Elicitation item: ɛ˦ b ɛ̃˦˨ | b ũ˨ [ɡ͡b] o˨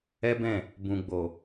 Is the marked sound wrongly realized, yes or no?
no